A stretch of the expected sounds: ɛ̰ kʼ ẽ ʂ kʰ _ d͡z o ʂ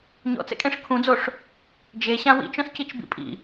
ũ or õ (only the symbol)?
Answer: ũ